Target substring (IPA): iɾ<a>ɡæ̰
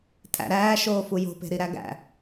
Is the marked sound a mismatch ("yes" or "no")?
yes